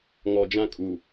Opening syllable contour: low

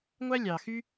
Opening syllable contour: high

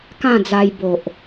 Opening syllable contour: falling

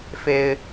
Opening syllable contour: high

